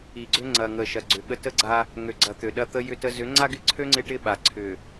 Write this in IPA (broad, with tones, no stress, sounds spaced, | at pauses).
i˨ ɡ͡ǀ ʏ˦ ŋ͡ǀ ɐ˨ ŋ ə˨ ʃ ɐ˨ ɡ͡ǀ ʏ˨ ɠ ə˦ t ə˦ ɡ͡ǀ a˦ | ŋ ø˨ ɡ͡ǀ ɐ˨ t̪ ø˨ ɗ ɐ˦ t̪ ə˦ j ʏ˦ t ə˦ z ʏ˨˦ ŋ͡ǀ a˦ ɡ ɪ˦ ǀʰ ø˦ ŋ͡ǀ ɪ˦ ʈ ɪ˦ ɓ a˨ ǀʰ ʏ˨